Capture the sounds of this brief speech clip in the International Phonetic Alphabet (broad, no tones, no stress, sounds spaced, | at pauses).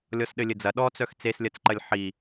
lʲ ɔ s ɗ ɘ lʲ ɘ d͡z ɐ ɗ ɔ t͡s œ x t͡s e s lʲ ɐ t͡s ǃ ɐ lʲ ħ i